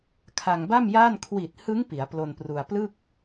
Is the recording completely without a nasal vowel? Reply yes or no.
yes